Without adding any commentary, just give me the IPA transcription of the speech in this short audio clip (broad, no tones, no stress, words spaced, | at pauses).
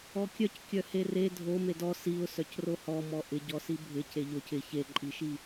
ɔkʲœckʲœ here dʱo medɔ siʊ̯ sœcrohɔmɔ ʔɪɟɔsi bʱɪ ceʎoc ɪ çeǃʼiʃi